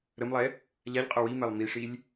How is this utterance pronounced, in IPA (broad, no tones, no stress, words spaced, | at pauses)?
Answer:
ɾəmlˠɛ | ʎaʎqʼə wimɛlˠ miʂilʲ